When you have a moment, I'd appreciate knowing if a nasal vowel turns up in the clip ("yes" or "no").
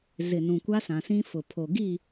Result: yes